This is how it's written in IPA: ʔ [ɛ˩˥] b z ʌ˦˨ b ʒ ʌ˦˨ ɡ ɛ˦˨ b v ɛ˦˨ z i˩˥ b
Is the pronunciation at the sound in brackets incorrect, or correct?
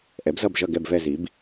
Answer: correct